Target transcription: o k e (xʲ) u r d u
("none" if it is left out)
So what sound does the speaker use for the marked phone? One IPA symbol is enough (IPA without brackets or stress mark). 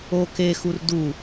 x